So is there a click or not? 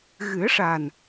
no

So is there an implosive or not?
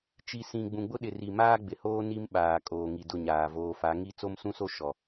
yes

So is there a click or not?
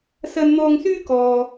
no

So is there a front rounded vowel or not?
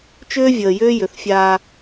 yes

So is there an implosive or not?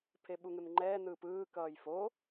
yes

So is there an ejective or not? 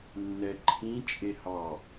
yes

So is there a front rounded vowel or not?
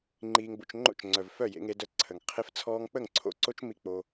yes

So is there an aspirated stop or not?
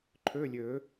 yes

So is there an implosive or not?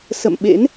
yes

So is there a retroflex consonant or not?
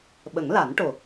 yes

